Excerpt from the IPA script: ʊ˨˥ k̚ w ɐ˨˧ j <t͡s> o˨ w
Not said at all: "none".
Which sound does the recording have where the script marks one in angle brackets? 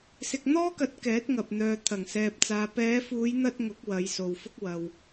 s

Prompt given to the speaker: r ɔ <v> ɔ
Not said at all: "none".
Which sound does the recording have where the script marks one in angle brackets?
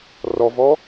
v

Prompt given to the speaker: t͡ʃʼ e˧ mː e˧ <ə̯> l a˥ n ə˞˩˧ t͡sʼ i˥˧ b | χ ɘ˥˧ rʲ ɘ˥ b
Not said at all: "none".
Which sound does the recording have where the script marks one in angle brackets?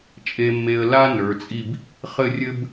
ə̯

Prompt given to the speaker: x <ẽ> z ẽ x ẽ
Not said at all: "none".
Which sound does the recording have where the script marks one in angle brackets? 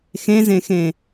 ẽ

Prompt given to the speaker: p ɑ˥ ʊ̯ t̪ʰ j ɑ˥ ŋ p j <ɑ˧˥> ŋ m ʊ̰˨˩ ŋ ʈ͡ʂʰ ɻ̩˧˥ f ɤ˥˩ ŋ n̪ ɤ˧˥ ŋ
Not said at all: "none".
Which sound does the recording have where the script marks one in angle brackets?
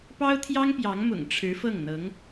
ɑ˧˥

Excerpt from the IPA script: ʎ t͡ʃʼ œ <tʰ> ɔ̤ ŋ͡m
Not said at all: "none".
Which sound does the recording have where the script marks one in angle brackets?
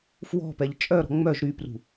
ɾ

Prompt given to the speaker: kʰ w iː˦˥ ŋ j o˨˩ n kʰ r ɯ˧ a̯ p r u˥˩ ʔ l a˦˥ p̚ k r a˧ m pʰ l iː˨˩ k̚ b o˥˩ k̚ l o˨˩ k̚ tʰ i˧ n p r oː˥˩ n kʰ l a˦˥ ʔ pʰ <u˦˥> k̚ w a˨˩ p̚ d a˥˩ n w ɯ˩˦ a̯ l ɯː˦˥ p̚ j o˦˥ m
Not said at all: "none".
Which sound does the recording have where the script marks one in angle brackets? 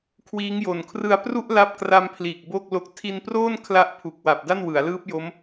u˨˩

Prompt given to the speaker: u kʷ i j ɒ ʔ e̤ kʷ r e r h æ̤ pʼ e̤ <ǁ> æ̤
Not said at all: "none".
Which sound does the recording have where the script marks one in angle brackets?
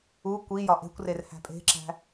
ǁ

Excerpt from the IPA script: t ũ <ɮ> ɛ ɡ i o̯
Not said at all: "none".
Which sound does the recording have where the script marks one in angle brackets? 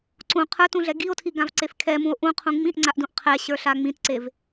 ɮ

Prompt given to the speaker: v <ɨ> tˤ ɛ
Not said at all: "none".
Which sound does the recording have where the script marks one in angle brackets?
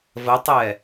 ə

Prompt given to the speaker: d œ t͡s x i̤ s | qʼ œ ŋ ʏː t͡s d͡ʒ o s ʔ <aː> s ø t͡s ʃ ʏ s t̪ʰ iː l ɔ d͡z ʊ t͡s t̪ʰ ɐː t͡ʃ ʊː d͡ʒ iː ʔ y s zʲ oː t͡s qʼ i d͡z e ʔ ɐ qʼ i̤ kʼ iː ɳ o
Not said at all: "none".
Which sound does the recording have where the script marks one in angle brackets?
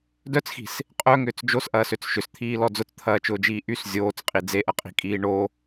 ɐː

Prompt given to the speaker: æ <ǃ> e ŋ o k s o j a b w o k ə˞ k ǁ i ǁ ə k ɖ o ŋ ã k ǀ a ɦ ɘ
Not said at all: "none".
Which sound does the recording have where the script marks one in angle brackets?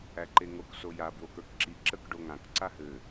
ǃ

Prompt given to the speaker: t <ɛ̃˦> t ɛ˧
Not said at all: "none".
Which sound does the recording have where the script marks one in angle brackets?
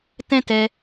ɛ̃˦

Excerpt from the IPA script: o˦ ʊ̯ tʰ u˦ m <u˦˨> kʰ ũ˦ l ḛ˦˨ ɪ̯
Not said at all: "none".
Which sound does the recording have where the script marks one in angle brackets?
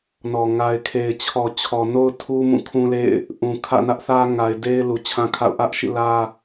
ũ˦˨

